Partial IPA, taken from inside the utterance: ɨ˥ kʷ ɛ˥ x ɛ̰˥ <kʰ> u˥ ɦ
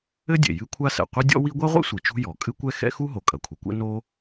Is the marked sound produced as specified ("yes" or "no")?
no